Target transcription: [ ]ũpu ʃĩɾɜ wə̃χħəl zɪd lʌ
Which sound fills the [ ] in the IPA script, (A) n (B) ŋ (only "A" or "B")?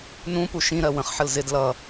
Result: A